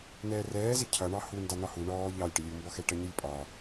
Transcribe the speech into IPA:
nɛːrɛːzɪ cʰʌɳɑ hu ndɑn̪ɒhu ɳɔː ʎɑlʲ ʈəlʲumbɔxɛ ʈʌɲɪlʲpʼɒ

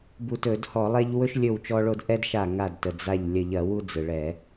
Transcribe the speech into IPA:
bu˧˩tɵ˧˩˧dhɔ˧˩˧ lˠɛ˦ʎ wɵ˦ʃlʲɵ˧˩w t͡ʃɔ˦ɭo˦d ʔɛ˦dʃa˧˩ ŋa˧˩dtə˩ d͡za˧˩ʎ lʲə˧˩ʎɐ˧˩˧wu˦ d͡zɯ˩ɭɛ˧˩˧

